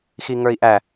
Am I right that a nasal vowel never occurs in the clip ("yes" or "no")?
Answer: yes